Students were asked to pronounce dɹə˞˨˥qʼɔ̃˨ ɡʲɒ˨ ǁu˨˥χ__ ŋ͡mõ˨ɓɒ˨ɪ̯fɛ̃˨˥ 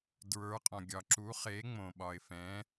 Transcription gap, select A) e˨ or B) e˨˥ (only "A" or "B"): B